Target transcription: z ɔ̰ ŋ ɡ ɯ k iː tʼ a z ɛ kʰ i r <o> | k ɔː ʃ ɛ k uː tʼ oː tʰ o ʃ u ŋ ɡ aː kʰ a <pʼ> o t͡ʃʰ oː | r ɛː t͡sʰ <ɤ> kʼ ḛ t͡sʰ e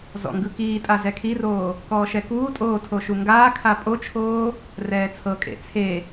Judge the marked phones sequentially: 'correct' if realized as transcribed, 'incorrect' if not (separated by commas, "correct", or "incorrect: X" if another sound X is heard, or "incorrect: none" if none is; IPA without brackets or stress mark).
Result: incorrect: oː, correct, correct